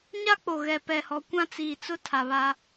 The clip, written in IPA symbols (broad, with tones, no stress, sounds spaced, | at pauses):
ɲ a˦ k͡p o˨ ɣ ɛ˨ p ɛ˨ h ɔ˨˦ kʷ ã˦ t͡s iː˨ t͡s ʊ˦ tʰ a˨ β a˦